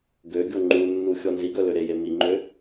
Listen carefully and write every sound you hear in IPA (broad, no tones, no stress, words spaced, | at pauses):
ɡøɡʲo ŋ͡ǃunːu xʲɔnziɡœ løɾeje miŋ͡ǃø